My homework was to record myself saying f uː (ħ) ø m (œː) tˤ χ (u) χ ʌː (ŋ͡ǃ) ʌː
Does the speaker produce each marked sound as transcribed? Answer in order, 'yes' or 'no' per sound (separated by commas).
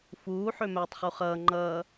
yes, yes, yes, yes